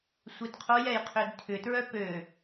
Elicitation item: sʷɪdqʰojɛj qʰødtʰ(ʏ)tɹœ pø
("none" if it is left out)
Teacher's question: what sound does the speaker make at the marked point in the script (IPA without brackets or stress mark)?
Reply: ʏ